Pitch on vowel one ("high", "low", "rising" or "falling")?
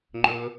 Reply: high